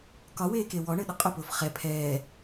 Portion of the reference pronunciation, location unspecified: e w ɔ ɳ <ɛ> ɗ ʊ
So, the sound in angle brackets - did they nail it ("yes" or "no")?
no